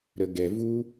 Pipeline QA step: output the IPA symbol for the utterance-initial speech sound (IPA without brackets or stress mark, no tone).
ɾ